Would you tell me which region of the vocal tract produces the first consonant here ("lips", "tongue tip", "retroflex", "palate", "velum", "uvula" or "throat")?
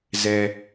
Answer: tongue tip